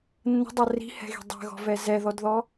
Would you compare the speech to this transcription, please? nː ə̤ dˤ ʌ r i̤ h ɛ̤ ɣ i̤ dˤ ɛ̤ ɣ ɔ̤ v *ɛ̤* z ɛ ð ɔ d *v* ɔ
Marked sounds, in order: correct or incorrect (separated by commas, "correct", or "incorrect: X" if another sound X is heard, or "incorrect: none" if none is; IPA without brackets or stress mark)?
incorrect: ɛ, incorrect: ð